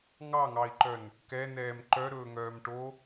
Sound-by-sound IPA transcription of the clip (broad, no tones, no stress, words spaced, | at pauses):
ŋɑŋɑi̯ǃœn | kɛnɛːm ǃœɾɵːŋœːm ʈo